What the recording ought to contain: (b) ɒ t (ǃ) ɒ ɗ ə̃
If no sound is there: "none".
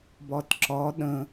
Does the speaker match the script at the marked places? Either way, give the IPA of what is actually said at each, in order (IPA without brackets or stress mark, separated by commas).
b, ǁ